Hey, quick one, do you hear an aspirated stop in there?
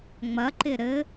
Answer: no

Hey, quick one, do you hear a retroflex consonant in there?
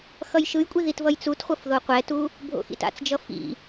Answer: no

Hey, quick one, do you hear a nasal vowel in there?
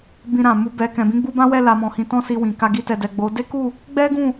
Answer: yes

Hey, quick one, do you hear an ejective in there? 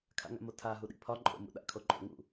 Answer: yes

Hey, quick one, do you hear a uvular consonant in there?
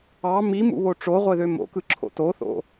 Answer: yes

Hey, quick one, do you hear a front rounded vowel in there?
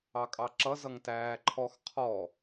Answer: no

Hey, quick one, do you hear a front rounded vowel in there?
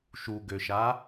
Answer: yes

